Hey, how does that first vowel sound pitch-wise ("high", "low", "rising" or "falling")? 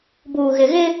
low